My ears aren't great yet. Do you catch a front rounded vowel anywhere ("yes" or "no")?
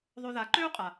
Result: yes